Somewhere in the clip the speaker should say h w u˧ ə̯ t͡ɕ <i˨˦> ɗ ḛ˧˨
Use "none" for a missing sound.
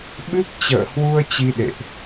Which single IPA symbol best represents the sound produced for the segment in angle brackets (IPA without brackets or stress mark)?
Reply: i˧